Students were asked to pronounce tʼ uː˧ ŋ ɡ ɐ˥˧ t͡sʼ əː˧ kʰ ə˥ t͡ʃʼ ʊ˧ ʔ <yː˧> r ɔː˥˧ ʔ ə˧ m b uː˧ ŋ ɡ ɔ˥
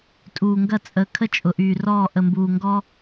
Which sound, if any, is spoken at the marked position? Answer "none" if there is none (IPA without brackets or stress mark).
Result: yː˧